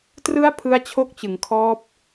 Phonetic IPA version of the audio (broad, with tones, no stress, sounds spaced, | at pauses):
t r ɯ˦˥ a̯ pʰ ɯ˦˥ a̯ t͡ɕʰ o˦˥ k̚ t͡ɕ ɯ˩˦ ŋ kʰ ɔː˦˥ p̚